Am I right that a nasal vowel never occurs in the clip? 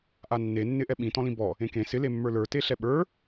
no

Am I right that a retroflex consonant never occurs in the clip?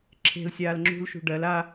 no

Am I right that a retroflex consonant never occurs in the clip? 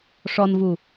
no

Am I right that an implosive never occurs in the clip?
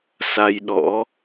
no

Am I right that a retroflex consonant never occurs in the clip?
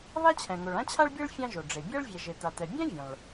no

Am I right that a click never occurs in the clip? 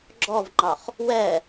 no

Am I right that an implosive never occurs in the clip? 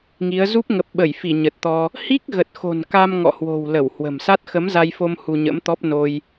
no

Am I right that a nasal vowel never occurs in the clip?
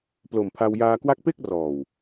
yes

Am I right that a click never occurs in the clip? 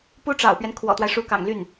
yes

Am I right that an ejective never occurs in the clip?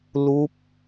yes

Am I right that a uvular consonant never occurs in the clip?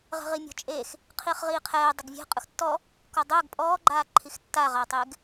no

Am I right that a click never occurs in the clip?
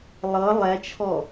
yes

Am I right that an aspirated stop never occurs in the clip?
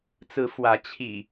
no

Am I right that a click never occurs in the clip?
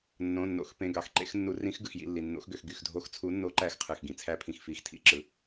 no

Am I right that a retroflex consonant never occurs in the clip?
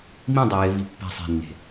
yes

